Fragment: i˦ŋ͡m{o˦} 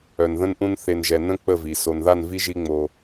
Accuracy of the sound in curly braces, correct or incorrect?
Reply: correct